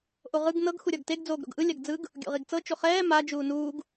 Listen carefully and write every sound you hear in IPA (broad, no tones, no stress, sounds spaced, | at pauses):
ʔ o ʁ ɯ ɡ n ɤ ɡ x u ɾʲ ɔ ɡ t e ɡ d͡z oː ɡ ɾ o̰ ɡ ʔ ɯ lʲ a ɡ d͡z ɯ ɡ | ɡʲ o̰ ʁ i ɡ t͡s ɤ t͡ʃ o χ ɛː m a d͡ʒ uː n uː ɡ